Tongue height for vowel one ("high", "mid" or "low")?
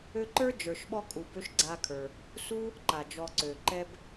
mid